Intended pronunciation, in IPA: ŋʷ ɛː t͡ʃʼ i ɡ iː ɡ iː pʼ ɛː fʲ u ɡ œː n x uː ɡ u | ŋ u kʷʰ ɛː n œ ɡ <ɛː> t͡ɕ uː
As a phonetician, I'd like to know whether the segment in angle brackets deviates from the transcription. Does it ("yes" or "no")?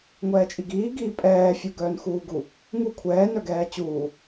no